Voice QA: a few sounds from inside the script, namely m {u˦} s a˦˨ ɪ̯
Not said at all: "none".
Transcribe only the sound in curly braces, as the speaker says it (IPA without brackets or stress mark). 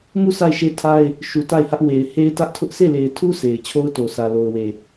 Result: u˦˨